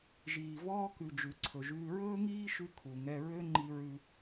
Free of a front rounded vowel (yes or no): no